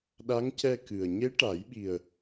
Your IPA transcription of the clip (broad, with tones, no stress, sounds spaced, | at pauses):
ɗ a˧˥ ŋ c ɛ˧ k ɨ˨˩ ə̯ ɲ e˧˥ ʈ a˨˩˦ j ɓ i˨˩ ə̯